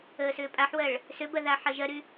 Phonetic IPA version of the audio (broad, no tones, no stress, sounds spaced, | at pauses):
əː s ʏː pʼ a ħ w ɜ ɭ | s ʏ b ɜ ð a ħ ɜ ʒ ɜ ɾ y